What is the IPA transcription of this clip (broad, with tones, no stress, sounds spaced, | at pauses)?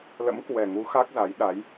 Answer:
l ə̰˧˥ m k w ɛ˨˩ ŋ u˨˦ x a˦˥ k̚ z a˨˦ j ɗ a˨˦ j